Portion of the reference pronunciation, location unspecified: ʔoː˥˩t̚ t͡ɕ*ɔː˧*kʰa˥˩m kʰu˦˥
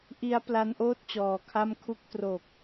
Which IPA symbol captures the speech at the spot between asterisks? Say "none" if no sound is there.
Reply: ɔː˨˩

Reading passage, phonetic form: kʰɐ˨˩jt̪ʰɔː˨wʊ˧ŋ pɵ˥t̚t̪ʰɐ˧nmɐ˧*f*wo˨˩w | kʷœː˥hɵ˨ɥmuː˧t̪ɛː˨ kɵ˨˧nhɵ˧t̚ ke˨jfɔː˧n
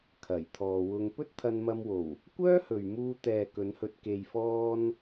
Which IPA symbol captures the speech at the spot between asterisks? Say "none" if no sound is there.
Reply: m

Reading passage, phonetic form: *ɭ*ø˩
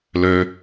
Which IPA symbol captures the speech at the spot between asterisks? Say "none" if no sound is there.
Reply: l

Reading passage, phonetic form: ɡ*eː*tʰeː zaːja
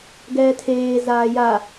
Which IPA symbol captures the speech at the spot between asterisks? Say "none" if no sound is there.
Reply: ɛː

